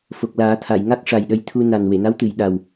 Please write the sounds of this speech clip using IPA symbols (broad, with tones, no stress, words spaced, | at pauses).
fo˨˩k̚laː˨˩˦t̪ʰa˨˩˨jŋa˦˥k̚ ʂa˨˩jɗə˧jt̪ʰu˧ na˨˩nwe˨˩˨na˧˥w t̪ɨ˨˩˨j ɗa˨˩w